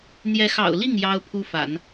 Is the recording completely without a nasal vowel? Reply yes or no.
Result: yes